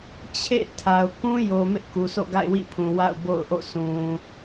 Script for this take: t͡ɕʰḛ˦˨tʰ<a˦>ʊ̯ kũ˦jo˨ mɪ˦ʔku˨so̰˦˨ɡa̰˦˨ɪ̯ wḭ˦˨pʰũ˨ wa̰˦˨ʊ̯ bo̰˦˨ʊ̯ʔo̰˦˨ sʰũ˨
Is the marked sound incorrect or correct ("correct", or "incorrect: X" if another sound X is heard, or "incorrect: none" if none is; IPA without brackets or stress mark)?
incorrect: a˨